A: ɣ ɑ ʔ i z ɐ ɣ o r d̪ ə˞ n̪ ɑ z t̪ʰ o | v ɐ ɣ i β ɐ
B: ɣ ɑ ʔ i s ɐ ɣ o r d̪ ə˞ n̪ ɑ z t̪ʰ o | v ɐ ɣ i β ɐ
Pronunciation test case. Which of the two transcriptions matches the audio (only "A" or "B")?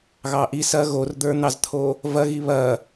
B